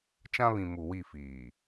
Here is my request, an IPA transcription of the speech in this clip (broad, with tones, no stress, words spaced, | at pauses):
t͡ʃã˦βĩ˨ mu˨wi˦˨fiː˨